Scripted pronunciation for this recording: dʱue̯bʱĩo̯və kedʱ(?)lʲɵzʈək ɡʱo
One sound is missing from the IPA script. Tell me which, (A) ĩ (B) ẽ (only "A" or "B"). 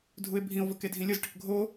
A